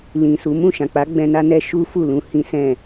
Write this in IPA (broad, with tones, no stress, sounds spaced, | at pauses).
l ĩ˨ s u˨˦ m ũ˦˨ ʃ ã˨ k͡p a˨˦ ɡ͡b ɛ̃˧ n a˦ n ɛ˦ ʃ u˦ f u˦˨ l ũ˧ h ĩ˦ s ɛ̃˦˨